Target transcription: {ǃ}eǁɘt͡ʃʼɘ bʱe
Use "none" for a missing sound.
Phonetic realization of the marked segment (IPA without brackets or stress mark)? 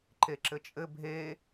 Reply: ǃ